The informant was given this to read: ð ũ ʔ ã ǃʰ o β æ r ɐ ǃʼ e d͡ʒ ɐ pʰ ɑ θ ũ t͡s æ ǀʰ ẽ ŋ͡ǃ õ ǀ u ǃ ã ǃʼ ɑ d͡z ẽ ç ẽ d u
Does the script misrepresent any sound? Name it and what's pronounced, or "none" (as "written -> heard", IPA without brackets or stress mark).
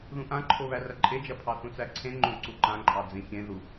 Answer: d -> ð